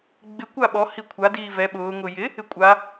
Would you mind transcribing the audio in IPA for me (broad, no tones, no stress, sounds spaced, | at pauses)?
ɡ͡b ɪ kʷ a ɓ ɔ h i kʷʰ a d iː v ɛ ɓ ʊː ŋ ʊ j ɪ | ɪ kʷʼ a